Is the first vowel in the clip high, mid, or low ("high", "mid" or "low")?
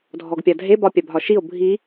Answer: mid